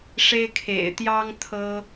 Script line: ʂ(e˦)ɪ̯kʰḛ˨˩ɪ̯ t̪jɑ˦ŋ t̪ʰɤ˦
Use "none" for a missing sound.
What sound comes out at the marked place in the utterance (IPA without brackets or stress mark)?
e˦